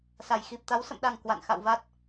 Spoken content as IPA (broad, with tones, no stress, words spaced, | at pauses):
sa˨˩jxi˨˩p̚t̪a˨˦w sə̰˧˨mɗa˨˩ŋ kwa̰˧˨nxa̰˧˨wva˦˥t̚